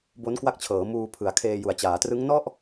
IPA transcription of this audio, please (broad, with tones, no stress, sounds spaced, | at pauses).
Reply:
b o˦˥ n k w a˦˥ k̚ t͡ɕʰ ɤː˩˦ m uː˧ pʰ ɯ˩˦ a̯ kʰ eː˧ j u˩˦ a̯ t͡ɕ aː˩˦ t r ɯ˦˥ ŋ n ɔ˥˩ ʔ